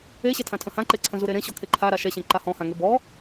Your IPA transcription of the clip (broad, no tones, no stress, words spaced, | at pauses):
eɕɛtʰã tʰə̃hãǃeǀʰə̃ zuɾeɾẽɕɔ kʰeǃʰaɾa ʃɛɕẽ ǃahɔ̃hãŋe bɔ